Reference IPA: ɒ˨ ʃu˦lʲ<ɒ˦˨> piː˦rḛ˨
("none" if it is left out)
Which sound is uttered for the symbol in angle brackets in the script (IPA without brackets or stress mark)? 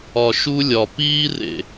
ɒ˨